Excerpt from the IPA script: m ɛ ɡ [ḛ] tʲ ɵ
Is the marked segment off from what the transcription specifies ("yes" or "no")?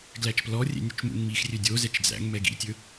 yes